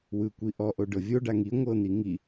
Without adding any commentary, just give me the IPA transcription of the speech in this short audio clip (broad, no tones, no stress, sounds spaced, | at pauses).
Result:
w ɯ kʷ i ʔ ɔ ʔ o ɖ ɤ vʲ o ɖ a ŋ i ŋʷ ɤ n̪ i ŋ i